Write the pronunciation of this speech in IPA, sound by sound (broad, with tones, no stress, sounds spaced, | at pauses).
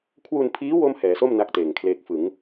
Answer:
kʰ w u˧ n pʰ iː˦˥ w o˥˩ m h ɛː˩˦ s o˥˩ m n a˥˩ k̚ t eː˨˩ ŋ kʰ l eː˦˥ k̚ f ɯ˩˦ ŋ